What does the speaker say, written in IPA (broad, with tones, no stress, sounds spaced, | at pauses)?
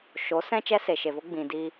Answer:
ʃ o˨˦ s ɛ̃˦ t͡ʃ ɛ˦ s e˨ ʃ e˨ v o˦ ɡ͡b ĩ˨ d i˧